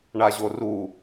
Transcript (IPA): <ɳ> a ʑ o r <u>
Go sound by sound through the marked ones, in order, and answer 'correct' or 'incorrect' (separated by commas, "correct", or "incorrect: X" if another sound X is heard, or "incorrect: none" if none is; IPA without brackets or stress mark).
correct, correct